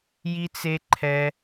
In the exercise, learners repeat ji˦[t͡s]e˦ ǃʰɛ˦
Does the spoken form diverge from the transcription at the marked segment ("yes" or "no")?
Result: no